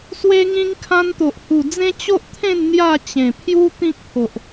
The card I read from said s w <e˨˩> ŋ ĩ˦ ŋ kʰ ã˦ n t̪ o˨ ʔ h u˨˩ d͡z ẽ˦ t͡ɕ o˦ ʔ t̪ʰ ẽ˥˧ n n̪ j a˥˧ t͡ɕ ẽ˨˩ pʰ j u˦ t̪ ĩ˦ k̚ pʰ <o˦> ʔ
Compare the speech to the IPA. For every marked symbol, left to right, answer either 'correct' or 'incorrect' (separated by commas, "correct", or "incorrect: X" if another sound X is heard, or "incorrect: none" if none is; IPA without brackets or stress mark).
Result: incorrect: e˦, incorrect: o˨